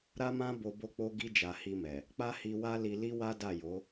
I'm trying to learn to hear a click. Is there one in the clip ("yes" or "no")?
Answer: no